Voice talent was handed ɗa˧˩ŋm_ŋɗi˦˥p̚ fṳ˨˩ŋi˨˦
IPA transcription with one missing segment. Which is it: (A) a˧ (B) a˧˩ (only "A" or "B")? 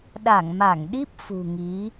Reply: B